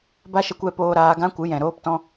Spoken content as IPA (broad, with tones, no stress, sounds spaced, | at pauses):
b a˦ ʃ ə˧ kʷ ɛ˧ p oː˧ ɾ aː˧ ɡ ã˦ kʷ ɨ˨˦ j ɛ̃˨ ɾ oː˦ p t ɔ̃˦